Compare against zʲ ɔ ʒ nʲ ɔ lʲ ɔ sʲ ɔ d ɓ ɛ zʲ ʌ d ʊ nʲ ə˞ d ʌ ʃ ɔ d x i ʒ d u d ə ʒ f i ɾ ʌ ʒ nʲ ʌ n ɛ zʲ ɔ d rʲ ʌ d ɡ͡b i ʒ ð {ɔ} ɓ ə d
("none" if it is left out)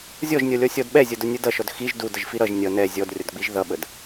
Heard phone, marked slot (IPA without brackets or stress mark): ʌ